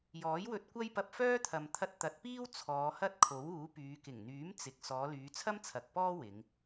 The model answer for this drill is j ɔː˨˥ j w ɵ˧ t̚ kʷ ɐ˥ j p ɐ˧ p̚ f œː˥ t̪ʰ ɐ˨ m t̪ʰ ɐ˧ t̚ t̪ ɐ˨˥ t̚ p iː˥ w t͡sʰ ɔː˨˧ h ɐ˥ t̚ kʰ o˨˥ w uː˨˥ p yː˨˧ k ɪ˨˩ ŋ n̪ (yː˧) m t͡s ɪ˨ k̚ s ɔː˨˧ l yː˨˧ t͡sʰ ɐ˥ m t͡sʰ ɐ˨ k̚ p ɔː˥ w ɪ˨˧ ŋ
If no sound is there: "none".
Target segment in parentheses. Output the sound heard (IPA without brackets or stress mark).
yː˨˥